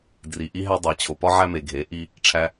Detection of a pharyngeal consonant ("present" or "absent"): present